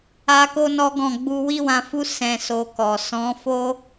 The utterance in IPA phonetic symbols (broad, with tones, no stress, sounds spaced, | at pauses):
a˧ k o˦ n ɔ˦ ɡ ɔ̃˦˨ ɡ͡b u˧ w i˦ w ã˧ f u˦ s ɛ̃˧ s o˧ k ɔ˨ s ɔ̃˨˦ f o˦